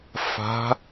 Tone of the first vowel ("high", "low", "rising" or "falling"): rising